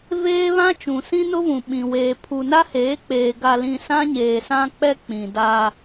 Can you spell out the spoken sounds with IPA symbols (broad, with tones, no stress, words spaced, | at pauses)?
veː˦βã˦ t͡ʃũ˨sĩ˦nʊ˦vũ˨ ɓĩ˨weː˨ pʰu˨na˦heː˨˦k͡peː˨ ɡa˨lĩ˨ sã˦ɲeː˨sã˦k͡pɛ˦ k͡pĩ˨da˦